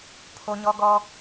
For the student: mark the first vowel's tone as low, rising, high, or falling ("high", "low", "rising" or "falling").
low